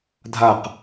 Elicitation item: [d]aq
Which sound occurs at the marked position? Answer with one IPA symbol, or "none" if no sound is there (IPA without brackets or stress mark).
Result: dʱ